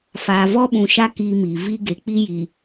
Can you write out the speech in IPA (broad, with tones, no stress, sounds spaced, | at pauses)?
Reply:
f aː˨ v ɔ˦ ɓ ũ˨ ʃ a˦ k iː˦ m iː˨ v i˦ ɡ e˨ k͡p i˦ j iː˨